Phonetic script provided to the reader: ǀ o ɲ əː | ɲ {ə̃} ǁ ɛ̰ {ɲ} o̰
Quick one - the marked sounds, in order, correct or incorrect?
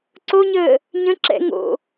correct, incorrect

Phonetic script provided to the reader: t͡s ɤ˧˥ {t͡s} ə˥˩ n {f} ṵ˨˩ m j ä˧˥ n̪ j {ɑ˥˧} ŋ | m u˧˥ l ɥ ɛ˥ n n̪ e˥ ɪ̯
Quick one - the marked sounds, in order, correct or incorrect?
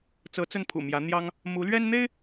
correct, incorrect, incorrect

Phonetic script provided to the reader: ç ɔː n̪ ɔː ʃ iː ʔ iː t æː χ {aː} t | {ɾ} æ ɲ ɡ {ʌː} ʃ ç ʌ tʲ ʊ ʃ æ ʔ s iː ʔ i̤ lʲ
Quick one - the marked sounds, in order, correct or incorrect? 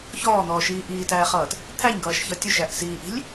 incorrect, incorrect, correct

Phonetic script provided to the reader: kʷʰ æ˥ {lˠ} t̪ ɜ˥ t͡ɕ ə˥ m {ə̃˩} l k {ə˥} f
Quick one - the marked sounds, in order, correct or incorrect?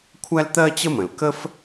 incorrect, correct, correct

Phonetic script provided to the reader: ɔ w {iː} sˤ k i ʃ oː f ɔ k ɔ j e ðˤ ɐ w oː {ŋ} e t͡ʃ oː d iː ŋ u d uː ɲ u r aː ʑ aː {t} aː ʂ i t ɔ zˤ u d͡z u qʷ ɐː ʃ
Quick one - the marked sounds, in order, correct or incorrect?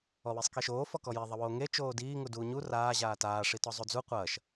incorrect, correct, correct

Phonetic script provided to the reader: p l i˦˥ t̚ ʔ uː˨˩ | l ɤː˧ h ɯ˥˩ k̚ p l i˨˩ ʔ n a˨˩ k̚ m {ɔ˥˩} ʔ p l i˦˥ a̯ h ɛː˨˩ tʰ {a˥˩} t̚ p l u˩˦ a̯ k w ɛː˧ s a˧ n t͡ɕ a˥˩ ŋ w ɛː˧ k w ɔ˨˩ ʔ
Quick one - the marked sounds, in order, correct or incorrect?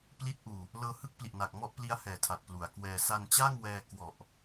correct, incorrect

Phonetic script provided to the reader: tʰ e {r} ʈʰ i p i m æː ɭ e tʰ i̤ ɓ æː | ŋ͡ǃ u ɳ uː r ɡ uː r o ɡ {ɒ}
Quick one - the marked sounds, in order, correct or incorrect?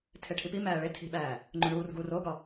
incorrect, correct

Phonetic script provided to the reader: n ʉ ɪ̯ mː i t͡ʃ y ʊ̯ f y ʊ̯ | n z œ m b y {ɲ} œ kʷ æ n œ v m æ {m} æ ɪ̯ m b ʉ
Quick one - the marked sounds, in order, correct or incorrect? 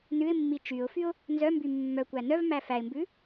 incorrect, incorrect

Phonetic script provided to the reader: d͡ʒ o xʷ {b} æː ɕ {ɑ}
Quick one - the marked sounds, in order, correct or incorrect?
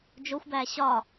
correct, incorrect

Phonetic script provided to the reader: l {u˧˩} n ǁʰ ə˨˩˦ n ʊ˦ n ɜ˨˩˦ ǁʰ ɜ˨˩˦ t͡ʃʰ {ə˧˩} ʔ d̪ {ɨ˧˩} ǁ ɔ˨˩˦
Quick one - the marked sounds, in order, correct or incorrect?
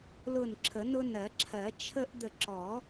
incorrect, incorrect, incorrect

